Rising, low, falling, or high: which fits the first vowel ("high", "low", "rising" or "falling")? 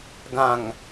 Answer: low